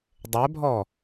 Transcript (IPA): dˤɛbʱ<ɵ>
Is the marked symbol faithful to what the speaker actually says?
no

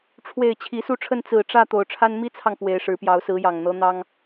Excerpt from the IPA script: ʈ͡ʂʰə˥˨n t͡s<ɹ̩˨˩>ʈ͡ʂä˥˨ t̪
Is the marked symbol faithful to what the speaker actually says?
yes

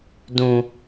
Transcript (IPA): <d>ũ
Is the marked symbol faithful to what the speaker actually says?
yes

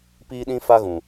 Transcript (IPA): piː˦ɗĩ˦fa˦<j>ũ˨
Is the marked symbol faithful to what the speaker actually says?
no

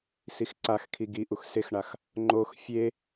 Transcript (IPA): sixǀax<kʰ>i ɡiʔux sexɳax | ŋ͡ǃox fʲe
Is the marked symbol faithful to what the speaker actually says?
yes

